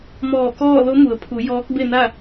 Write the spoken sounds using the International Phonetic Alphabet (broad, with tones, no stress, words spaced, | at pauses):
mɔː˧˩kɔː˥˨ lo˧˥mu˩˧ə̯pʰu˩˧ jɔː˧˥k̚be˥˨na˥˨